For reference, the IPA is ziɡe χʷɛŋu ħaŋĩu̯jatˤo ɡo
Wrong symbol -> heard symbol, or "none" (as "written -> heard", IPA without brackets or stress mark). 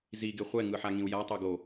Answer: u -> ɯ